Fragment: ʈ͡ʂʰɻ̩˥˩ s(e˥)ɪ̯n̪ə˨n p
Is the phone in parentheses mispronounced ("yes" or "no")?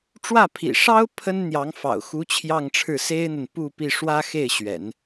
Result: no